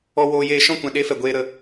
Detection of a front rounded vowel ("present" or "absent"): absent